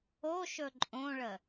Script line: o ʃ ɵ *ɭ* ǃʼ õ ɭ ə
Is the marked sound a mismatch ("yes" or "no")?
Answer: yes